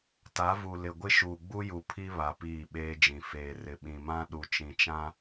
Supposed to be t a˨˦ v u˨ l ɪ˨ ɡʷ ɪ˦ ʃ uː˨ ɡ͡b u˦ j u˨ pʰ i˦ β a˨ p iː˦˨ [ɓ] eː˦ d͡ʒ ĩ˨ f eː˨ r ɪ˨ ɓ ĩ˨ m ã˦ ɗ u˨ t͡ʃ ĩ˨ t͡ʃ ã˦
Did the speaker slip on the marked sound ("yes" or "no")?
no